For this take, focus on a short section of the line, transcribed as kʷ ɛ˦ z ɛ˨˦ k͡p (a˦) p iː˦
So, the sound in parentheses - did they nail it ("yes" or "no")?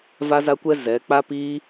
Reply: yes